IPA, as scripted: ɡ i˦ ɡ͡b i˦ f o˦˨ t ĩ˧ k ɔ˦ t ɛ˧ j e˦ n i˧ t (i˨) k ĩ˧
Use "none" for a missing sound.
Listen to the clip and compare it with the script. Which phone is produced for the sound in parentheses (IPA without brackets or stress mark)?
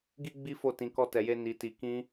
i˧